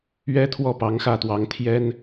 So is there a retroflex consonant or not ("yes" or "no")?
no